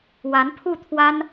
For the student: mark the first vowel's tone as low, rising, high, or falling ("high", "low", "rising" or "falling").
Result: rising